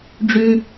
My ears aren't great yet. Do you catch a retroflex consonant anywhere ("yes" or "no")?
yes